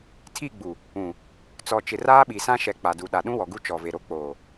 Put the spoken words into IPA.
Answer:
tʰ i˦˨ ɡ͡b u˨ | ũ˨ | t͡s ɔ˨ t͡ʃ ɪ˨ r aː˦ ɓ i˨ s ã˦ ʃ ɛ˨ k͡p a˨ d u˨ ɗ a˨ ɗ ũ˦ w ɔ˨ ɡ u˦ t͡ʃ ɔ˨ v e˨ ɾ o˦ k͡p oː˨

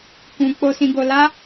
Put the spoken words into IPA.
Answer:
k ũ˧ k͡p o˧ s ĩ˧ ɡ o˧ l a˦

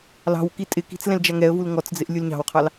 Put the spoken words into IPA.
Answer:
l ɑ̤ w k i tʼ ɪ k i̤ t͡s l ɛ̃ l d͡ʒ a ŋ ɛ ə̯ v u l ŋ ɔ t͡s d͡z ɪ ʔ lʲ u l ɲ ɑ̤ w qʰ ɑ l

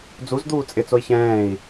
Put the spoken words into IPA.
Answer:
d͡z u z d̪ uː t͡sʼ ɪ t͡s o i̯ ç ɛ̃ː i̯

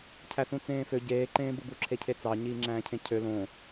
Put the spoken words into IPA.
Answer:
cʰ æ θ ũ t͡s ẽː f ø ɟ eː ǃ ẽː b ɯ b u ǁʰ e cʰ e t͡s ɑ ɲ iː ŋ͡ǁ æ̃ː cʰ ẽ cʰ ø l õ

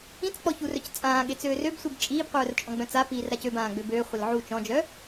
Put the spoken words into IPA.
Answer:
ĩ t͡s k͡p ɔ ç u r œ c t͡sʼ ãː ɠ e t͡s øː r ø b sʷ i b t͡ʃʼ iː b qʷ œː r t͡ʃʼ ɔ̃ ɡ͡b œ̃ t͡s a p iː r ɾ a c ø b ãː ɡ͡b ø b øː χʷ ɪ l ʕ u t͡ʃ ɔ̃ d͡ʒ œ

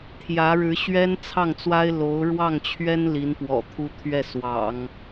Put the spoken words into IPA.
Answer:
t̪ʰ j ä˧˥ ɻ ɻ̩˧˥ ɕ ɥ ɛ˥ n t͡sʰ ɑ˥˩ ŋ t͡s w a˥ ɪ̯ l o˧˥ ʊ̯ ɻ w ɑ˥˩ ŋ t͡ɕʰ ɥ ɛ˥ n l i˧˥ n p w ɔ̰˨˩ t̪ʰ u˥ t̪ʰ ɥ ɛ˥˩ s w ɑ̰˨˩˦ ŋ

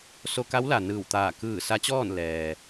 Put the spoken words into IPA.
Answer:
s o˧ k a˧˥ w l a˩ n ɯː˧˩ w t̪ aː˧˩ k ɯː˧˩ s a˧˥ t͡ɕ ɔː˥˨ n l ɛː˩

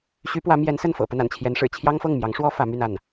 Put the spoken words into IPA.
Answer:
ɕ y˧˥ p w ä˧˥ m j ɛ˧˥ n s ə˥˩ n f ɤ̰˨˩ p ə˥˩ n a̰˨˩ n t͡ɕʰ j ɛ˧˥ n ʂ ɻ̩˨˩ t͡ɕʰ j ɑ˥ ŋ f ɤ˥˩ ŋ m j ɑ˧˥ ŋ ʂ w ɔ˥ f ä˧˥ m y˥˧ n a˥˩ n

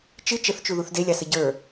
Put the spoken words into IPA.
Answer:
t͡ʃ ɨ t͡ʃ ə θ t͡ʃ u ð u θ d e lʲ ɑ s ə ɟ ə˞

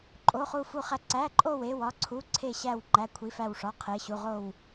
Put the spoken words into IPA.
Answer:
ǃʼ o˧˥˧ χ u˥˧ f u˥˧ χ æ˥˧ ǀ æ˧˥˧ ǃʼ o˥˧ w e˧˥˧ w ɒ˧˥˧ ǀʰ u˧˥˧ ǀʰ e˥˧ ɕ æ˥˧ w ŋ͡ǃ æ˧˥˧ kʷʰ i˧˥˧ f æ˥˧ w ʂ ɒ˧˥˧ qʰ e˧˥˧ ɕ u˧˥˧ ʁ o˥˧ w

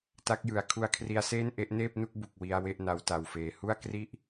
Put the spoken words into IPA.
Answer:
t a˦˥ k̚ j ɯ˨˩ a̯ kʰ u˧ a̯ kʰ r i˧ a̯ s eː˥˩ n ʔ e˦˥ ʔ n eː˥˩ p̚ n u˥˩ k̚ b u˨˩ k̚ w i˧ a̯ w e˥˩ ʔ n a˦˥ w t a˧ w f eː˧ h u˥˩ a̯ k r i˥˩ ʔ

